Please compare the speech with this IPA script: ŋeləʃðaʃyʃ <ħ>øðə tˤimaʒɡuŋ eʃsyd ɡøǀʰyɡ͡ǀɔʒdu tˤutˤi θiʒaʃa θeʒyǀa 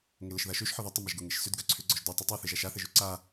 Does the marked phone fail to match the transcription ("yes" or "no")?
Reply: no